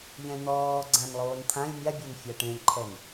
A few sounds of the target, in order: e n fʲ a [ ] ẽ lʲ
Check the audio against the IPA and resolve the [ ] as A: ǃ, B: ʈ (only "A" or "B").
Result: B